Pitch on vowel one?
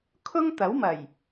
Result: high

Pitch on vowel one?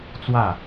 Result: falling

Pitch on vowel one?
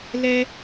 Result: high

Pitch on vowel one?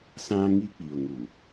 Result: high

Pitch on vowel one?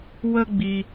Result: high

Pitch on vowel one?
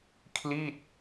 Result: falling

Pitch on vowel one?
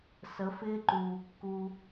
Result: rising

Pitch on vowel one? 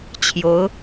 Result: rising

